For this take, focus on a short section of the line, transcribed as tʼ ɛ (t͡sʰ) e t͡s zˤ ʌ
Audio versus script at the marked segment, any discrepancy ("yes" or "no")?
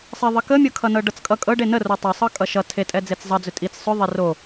yes